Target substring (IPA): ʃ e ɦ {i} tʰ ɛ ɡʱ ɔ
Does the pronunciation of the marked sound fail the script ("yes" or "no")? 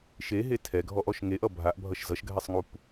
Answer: yes